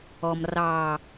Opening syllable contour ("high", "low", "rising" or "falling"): low